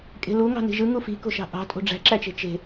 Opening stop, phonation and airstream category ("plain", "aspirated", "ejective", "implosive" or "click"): ejective